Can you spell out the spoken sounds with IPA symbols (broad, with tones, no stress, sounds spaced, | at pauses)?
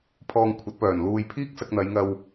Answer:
pʰ ɔː˧ ŋ kʷʰ ɐ˨˥ t̚ p œː˨˩ n l uː˧ j pʰ iː˥ k̚ s ɐ˧ k̚ n̪ ɐ˨˧ j ŋ ɐ˧ w